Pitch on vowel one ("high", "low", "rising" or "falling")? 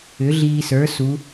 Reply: rising